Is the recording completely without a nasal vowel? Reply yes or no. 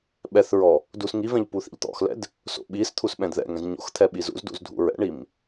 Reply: no